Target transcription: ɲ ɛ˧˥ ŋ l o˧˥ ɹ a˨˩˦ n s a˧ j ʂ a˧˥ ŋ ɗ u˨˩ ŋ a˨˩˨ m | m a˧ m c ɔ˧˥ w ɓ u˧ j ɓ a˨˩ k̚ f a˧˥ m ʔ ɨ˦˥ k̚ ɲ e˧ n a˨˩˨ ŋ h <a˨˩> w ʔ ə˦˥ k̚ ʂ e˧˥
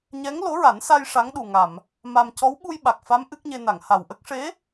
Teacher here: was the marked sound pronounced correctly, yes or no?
yes